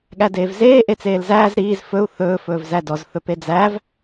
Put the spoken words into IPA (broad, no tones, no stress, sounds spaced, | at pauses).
ɠ æ d eː v z eː ʔ e t͡s eː l z æː z ɾ iː z f ɵ u̯ θ ɵː f ɵː v z æ d ɔ z θ ɵ p e d͡z æ v